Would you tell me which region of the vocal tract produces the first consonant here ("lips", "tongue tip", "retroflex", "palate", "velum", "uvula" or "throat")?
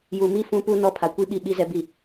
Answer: palate